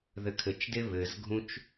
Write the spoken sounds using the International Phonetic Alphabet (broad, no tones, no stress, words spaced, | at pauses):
ðɘkʰɘt͡ʃde βɘzɡʱũt͡ʃ